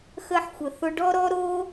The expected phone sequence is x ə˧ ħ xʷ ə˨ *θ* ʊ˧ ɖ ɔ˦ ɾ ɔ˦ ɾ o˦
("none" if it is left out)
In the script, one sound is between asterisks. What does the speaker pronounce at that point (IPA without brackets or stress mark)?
θ